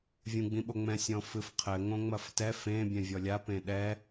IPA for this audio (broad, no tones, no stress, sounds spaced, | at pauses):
vʲ ũ ɡ͡b ĩ ɓ o ŋ͡m ɛ̃ sʲ ɔ̃ f ɨ f qʰ ɘ ŋ õ ŋ͡m ɐ f t ɛ f ẽ bʲ ɛ̃ vʲ ɔ lʲ a p ẽ ɗ ɛ